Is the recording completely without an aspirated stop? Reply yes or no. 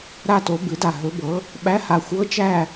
yes